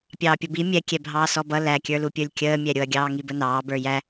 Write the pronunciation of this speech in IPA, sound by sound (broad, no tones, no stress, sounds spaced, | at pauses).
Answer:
pʲ ɑː pʲ ʊ b i mʲ ɛ kʲ ɛ bʱ ɑː s ɔ b ʌ l æ kʲ ə˞ l u pʲ ə˞ lʲ kʲ əː mʲ ɛ ɾʲ ʊ ɐ̯ ɡʲ ɑː ŋ i b ə n ɑː b ə˞ j æ